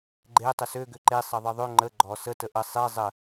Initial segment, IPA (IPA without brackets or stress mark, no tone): ɡ͡ǃ